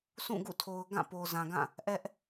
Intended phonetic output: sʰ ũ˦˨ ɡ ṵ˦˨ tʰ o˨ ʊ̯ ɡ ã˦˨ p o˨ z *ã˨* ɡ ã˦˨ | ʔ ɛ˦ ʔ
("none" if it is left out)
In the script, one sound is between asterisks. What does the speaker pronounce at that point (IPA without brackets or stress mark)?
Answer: ã˨